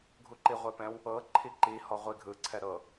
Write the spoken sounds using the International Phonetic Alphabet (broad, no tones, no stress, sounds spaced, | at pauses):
ɡʱ u ǃ i ʁʷ e p ɛ̃ w | ɤ ǃʰ i ǃ i h ɔ ʁʷ i ɡʱ ɯ ǀʰ ɛ ɾ ɤ